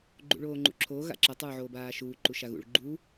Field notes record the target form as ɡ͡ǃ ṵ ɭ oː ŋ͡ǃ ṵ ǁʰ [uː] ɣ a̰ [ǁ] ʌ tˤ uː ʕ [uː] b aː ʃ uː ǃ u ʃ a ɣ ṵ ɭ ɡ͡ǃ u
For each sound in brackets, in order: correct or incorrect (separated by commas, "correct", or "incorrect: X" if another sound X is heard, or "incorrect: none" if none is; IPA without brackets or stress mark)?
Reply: incorrect: oː, correct, incorrect: oː